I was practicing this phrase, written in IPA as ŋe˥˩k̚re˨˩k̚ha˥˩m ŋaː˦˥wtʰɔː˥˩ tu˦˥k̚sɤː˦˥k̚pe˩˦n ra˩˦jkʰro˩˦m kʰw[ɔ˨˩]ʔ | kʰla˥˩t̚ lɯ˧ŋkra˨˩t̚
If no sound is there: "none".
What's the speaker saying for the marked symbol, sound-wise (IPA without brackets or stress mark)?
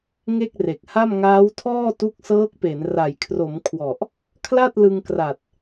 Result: ɔ˨˩